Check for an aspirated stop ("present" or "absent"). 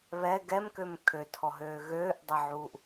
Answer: present